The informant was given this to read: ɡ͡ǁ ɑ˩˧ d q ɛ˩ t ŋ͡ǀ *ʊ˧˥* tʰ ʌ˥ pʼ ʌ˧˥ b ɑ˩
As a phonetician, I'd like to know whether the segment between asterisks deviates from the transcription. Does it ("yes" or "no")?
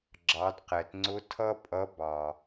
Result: no